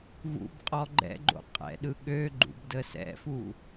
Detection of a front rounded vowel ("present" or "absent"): present